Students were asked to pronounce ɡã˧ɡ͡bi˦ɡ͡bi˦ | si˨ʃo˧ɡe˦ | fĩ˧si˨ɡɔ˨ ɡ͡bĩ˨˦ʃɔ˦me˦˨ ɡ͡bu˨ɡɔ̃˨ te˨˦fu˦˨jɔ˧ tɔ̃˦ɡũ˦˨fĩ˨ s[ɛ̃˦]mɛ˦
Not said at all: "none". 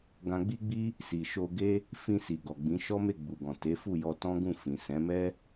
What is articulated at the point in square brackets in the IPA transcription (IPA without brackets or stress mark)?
ɛ̃˨˦